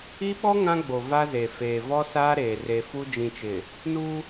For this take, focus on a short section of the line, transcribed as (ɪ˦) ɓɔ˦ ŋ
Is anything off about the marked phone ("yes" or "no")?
yes